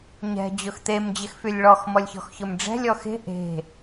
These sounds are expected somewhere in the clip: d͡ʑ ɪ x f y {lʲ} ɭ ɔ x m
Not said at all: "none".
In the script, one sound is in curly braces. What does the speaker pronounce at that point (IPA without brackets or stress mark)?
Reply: lʲ